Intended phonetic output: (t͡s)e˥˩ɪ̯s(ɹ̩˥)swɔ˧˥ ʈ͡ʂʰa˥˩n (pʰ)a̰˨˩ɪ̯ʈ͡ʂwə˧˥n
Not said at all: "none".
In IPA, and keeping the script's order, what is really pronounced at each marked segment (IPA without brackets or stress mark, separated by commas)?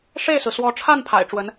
ʂ, ɹ̩˩, pʰ